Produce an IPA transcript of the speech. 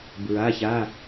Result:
bɹa˩˧˩ça˩˧˩

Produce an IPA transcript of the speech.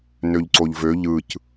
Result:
nøʎǀoʎvø ʎɯc

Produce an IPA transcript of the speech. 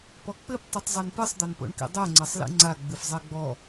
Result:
pɔk͡pɘp tˤitˤzˤɛnpɨsˤ d̪ɐnpo̰ɳkḭdˤɛ ŋ͡ǀɐsˤlḭŋ͡ǀa ɡ͡bɨfzˤɛɡ͡bɔ

